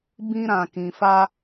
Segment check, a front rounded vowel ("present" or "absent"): absent